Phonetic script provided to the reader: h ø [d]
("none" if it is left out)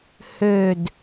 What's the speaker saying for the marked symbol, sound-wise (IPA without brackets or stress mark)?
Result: d